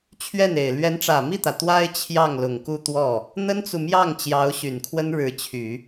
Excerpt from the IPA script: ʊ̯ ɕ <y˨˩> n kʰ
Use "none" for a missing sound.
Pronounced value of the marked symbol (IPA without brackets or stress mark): y˨˩